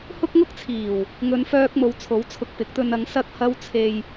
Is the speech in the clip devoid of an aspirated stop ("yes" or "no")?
no